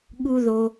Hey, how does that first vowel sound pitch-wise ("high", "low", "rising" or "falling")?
low